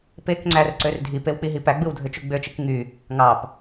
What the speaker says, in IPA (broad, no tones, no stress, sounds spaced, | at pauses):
p e k ŋ͡ǀ æ r ǀ ø r dʱ i p e w k͡p i ɦ i p æ ɡ͡b ɯ w dʱ ø t͡ʃ u ɡ͡b ø t͡ʃ ɯ k ŋ y | ŋ ɑ p